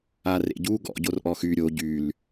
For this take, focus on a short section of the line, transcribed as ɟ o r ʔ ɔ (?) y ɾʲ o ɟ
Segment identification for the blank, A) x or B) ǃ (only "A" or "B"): A